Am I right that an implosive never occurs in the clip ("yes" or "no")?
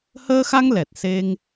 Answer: yes